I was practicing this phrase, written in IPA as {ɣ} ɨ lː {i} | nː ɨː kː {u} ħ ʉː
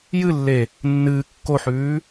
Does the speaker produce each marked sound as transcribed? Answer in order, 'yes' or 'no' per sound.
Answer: no, no, no

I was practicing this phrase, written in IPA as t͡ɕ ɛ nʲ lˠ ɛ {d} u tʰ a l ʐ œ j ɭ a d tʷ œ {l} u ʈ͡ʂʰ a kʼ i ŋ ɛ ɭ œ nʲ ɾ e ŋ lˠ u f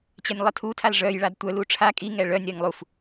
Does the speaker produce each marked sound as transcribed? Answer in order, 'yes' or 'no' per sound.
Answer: no, yes

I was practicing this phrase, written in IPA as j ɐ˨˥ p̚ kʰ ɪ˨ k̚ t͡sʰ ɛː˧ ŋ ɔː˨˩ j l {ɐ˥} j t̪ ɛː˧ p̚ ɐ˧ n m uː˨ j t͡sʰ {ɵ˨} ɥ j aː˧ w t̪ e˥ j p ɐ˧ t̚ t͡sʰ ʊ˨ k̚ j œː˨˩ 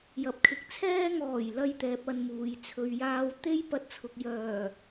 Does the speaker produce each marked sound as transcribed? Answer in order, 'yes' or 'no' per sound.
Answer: yes, yes

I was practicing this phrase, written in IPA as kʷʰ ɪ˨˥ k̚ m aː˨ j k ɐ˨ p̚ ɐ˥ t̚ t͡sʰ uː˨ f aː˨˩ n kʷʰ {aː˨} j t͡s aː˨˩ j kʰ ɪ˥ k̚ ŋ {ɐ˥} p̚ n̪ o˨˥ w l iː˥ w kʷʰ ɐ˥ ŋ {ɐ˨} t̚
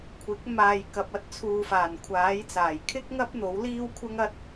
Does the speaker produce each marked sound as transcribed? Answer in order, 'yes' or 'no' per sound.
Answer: no, yes, no

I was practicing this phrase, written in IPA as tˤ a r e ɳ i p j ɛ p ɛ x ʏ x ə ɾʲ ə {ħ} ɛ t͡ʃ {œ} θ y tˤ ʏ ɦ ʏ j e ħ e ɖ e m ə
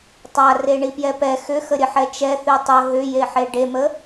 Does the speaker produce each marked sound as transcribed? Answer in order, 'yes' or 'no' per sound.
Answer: yes, no

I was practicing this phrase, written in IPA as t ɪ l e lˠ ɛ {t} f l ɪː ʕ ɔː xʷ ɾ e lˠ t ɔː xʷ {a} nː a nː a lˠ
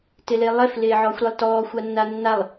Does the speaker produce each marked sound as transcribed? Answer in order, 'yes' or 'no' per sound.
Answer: no, yes

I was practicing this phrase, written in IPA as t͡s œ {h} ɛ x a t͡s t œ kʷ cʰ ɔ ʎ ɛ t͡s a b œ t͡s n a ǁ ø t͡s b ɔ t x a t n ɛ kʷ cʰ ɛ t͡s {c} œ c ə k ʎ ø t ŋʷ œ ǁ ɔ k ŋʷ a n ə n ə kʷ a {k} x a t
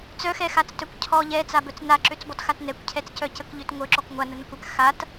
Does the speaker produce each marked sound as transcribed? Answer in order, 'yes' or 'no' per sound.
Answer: no, yes, yes

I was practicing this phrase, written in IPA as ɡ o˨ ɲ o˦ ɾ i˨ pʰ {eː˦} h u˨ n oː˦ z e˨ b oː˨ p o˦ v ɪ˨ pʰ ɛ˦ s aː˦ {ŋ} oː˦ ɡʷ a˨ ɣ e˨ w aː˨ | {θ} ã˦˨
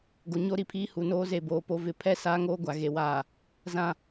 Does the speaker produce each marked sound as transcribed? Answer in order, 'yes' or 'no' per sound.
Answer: no, yes, no

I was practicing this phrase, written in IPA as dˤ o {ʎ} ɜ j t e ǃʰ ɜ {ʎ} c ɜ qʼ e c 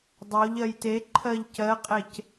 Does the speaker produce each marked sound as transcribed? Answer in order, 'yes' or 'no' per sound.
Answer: yes, yes

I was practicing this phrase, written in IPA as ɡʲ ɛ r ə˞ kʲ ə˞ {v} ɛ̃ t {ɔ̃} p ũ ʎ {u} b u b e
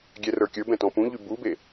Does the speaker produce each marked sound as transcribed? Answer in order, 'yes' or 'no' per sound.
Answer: no, yes, no

